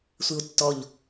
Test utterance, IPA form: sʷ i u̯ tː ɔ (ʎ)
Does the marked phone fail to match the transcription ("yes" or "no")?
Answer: no